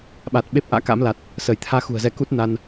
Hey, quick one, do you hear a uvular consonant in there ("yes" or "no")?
no